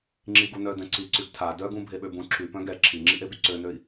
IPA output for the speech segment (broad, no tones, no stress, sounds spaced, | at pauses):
ŋ͡ǁ i ɡ u n œ d œ̃ ǀ i ǀ y ɡ tʰ a d œ ɡ ũ bʱ e ɓ ø b ũ ǁʰ y p œ̃ ɡ ɛ ǁʰ i ŋ͡ǁ i ʔ e b y ǀ ø n ø i̯